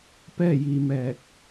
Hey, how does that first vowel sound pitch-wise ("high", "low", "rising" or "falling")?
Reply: falling